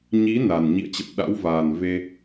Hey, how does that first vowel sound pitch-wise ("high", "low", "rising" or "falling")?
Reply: rising